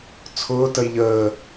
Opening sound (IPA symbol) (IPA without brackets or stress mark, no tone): t͡sʰ